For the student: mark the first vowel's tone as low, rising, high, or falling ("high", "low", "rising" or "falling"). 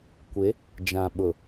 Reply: rising